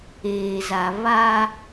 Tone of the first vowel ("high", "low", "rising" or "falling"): low